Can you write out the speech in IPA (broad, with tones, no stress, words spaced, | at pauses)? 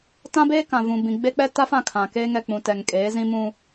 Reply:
tã˦beː˦kã˨vũ˨ bĩ˨ɡ͡be˦k͡pɛ˦ ta˦fã˦˨ kʰã˨ keː˦ŋɛ˨ k͡pũ˨ tɛ˨ŋkʼeː˨˦zĩ˦ mũ˦